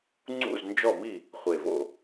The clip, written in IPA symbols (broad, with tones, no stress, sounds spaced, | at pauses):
ŋ͡ǀ ṵ˥˩ z n d͡ʒ ɔ˥˩ m i˥˩ | χʷ e˨˩ v o̰˥˩